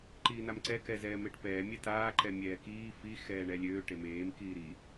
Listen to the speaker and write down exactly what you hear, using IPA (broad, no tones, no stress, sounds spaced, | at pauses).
ǃ iː n a m ǀ ɛ k ɛ z ɛː m e ʈ p ɛː mʲ ɛ t aː ǃ ɛ mʲ ɛː k iː f i x ɛː ɳ ɛ lʲ øː ʈ e m eː m k iː ɾ i